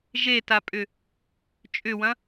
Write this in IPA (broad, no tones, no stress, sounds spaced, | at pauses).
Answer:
ʒ e t a pʼ ʏ | t͡ʃʼ ʏ w ɐ̃